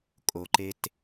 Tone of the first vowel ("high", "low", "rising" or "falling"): low